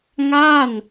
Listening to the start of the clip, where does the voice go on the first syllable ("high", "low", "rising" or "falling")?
falling